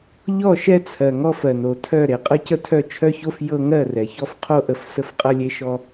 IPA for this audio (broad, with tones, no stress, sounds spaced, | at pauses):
ʎ ɔ˦˨ ʃ ɛ˦ t͡sʰ ɜ˨ ŋ ɔ˦ f ɜ˨ n o˨ tʰ œ˦˨ ɾ e˨ qʼ ɐ˦ c ə˦ tʰ œ˦˨ t͡ʃʰ œ˦ ç o˦ f j ɤ˦ ŋ ɜ˦˨ r ɛ˨ ç ɔ˦ f qʰ o˦ ʔ ə˨ f s ə˦ f qʼ ɐ˦ lʲ e˦ ʃ ɔ˦